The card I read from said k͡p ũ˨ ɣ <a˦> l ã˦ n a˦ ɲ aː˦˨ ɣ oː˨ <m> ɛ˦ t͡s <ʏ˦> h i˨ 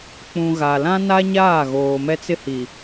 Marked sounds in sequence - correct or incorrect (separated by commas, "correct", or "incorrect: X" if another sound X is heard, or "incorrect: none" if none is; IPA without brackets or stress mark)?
incorrect: a˨, correct, incorrect: ɪ˦